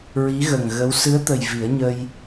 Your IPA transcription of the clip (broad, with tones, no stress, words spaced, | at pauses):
ɹi˧˥ɣə˨˩ŋɣə˧˥w sɨ˧˥ə̯t̪ə˨˩j vi˨˩˦ə̯ɲə˧j